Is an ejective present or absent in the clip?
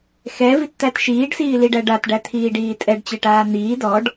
present